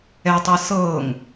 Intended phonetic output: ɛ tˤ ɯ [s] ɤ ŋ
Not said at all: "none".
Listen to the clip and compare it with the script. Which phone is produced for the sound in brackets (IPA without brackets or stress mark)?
s